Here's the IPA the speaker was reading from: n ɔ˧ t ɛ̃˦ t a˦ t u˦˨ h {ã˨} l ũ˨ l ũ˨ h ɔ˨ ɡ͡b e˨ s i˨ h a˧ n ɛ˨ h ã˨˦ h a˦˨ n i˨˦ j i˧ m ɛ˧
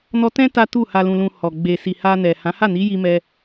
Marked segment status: incorrect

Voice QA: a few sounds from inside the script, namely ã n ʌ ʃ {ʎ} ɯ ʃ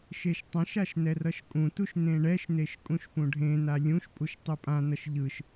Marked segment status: correct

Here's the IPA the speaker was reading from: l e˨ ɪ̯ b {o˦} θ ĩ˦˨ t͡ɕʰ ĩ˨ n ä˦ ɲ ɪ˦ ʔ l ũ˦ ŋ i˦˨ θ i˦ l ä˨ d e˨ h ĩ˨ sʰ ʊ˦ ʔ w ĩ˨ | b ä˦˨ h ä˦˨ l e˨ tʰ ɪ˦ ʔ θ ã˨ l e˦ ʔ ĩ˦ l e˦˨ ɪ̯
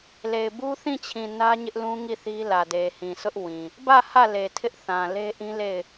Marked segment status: incorrect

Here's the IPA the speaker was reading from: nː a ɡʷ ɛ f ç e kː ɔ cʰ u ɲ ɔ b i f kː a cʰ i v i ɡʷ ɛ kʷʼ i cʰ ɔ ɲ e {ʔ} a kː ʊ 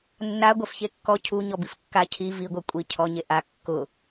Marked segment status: correct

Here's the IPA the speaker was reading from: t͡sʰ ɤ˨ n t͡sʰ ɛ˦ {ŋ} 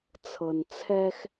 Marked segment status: incorrect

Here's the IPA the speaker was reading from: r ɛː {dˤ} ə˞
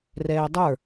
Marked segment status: correct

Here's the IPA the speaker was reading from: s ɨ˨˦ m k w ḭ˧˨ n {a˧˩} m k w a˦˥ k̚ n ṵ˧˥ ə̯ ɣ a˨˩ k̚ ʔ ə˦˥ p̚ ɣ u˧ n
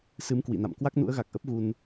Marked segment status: incorrect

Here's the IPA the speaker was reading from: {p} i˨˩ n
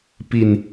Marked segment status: correct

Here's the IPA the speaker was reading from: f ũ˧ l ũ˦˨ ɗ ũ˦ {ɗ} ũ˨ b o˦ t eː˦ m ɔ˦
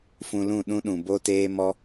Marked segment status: correct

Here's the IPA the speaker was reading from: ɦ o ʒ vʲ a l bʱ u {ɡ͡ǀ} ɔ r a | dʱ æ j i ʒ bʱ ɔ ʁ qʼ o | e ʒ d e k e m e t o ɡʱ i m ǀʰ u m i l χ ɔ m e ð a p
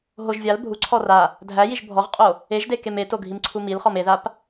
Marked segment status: incorrect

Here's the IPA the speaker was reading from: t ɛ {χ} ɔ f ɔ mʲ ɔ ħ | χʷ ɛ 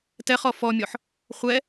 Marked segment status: correct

